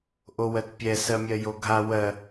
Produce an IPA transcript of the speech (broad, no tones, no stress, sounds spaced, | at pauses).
ʔ o w ɜ t pʲ ɛ s ɜ mʲ ɜ j o ɡʱ a w ɜ